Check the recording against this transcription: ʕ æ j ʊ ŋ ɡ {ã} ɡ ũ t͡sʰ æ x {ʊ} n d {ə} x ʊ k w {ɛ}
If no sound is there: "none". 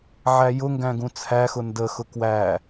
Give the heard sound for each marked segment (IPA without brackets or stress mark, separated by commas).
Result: æ̃, ʊ, ə, æ